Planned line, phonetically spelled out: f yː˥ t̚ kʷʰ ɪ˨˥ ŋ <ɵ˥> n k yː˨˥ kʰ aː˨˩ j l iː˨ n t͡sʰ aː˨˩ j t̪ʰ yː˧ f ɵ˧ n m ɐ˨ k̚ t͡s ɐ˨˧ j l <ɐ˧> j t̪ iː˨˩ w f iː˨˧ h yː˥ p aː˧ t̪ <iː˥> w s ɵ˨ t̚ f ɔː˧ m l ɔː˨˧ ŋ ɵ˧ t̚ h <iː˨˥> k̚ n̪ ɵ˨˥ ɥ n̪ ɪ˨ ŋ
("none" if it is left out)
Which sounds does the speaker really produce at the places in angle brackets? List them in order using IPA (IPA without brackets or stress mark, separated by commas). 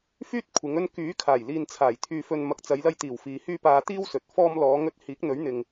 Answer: ɵ˥, ɐ˧, iː˥, iː˨˥